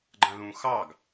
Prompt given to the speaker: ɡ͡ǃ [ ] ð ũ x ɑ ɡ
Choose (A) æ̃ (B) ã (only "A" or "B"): B